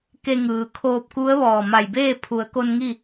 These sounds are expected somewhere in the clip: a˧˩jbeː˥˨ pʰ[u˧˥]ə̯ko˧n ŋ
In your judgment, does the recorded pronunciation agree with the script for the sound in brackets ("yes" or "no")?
no